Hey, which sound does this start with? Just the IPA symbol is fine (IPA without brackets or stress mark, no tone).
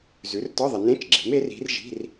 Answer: z